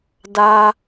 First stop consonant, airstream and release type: plain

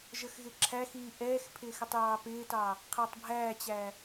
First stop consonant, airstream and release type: click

